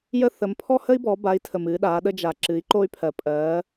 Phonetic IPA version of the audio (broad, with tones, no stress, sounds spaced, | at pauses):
j ə˧ θ ə˩˧ m pʰ ɔ˥ h ə˥ i̯ b ɔ˩˧ b a˩˧ i̯ tʰ ə˩ m ɨ˩˧ ɗ a˩˧ ɗ ə˧ d͡ʒ a˩ ǁ ɨ˩˧ i̯ ǃ o˧ y̯ pʰ ɜ˩ pʼ ɜ˩˧